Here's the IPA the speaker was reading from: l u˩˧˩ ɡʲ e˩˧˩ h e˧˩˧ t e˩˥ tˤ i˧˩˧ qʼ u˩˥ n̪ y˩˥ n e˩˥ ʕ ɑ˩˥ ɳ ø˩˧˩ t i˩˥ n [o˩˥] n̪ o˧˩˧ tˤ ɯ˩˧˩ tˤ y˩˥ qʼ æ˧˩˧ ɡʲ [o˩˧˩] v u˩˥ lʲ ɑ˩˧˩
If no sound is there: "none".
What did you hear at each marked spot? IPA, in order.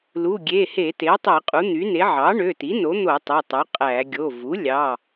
o˩˥, o˩˧˩

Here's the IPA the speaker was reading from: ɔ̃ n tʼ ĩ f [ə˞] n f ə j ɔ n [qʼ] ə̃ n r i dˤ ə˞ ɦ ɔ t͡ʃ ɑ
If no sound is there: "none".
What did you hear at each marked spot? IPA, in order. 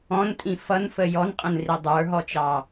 ʌ, qʼ

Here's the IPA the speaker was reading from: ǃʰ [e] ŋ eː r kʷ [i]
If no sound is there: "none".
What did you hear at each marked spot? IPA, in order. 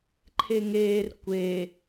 e, e

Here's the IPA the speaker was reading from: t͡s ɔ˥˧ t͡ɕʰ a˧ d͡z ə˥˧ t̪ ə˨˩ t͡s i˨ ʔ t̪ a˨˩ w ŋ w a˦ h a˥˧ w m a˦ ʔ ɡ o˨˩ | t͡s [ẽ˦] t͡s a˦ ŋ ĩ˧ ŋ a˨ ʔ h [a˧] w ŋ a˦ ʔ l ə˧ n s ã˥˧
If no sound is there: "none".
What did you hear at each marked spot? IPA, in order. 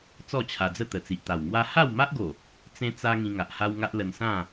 ẽ˦, a˦

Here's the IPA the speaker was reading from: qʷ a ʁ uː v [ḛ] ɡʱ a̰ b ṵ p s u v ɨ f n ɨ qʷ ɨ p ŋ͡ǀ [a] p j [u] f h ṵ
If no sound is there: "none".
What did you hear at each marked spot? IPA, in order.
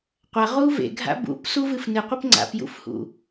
ḛ, a̰, ṵ

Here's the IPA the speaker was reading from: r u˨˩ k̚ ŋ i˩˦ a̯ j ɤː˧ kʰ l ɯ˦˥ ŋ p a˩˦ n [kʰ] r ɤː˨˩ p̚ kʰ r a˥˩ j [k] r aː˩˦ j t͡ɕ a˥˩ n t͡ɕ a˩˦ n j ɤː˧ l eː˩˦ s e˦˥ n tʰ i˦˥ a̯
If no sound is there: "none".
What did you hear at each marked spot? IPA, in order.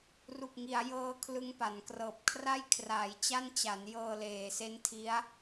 k, kʰ

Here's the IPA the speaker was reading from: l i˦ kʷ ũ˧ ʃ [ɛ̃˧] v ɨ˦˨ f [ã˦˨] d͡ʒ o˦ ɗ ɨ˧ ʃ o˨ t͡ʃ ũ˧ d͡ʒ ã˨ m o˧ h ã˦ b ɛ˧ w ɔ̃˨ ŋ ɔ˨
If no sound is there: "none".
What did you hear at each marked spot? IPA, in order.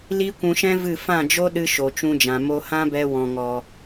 ɛ̃˦, ã˦˨

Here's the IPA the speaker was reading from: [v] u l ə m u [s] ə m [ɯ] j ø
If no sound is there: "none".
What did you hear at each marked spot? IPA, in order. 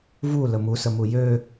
v, s, u

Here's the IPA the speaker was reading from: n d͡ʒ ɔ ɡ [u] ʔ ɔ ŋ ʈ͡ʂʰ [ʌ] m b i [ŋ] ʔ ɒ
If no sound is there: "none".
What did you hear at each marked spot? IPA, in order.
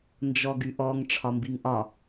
y, ɒ, ŋ

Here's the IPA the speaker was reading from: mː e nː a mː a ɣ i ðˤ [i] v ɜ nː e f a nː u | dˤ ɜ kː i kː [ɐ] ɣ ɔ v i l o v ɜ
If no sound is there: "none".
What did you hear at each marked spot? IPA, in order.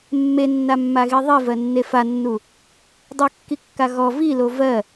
i, a

